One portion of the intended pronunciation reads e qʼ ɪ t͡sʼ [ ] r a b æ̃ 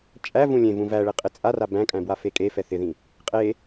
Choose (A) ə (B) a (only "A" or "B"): B